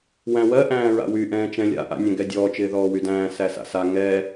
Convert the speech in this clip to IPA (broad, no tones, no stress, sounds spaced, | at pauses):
w æ̃ w ɜ ʔ æ̃ː ɹ a̰ w y ʔ ɛ̃ː t͡ʃ ɛ̃ lʲ a̰ ʔ a̰ nʲ ɛ̃ ɡ ɛ dʲ ɔː t͡ʃ ɪː ð ɔː w y d æ̃ː s æ s a̰ s a ŋ ɛ